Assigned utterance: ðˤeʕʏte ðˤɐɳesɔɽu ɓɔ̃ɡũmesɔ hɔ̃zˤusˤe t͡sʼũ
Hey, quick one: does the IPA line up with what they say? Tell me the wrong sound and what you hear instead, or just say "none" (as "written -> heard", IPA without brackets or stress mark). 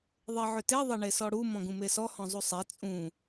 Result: ɓ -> m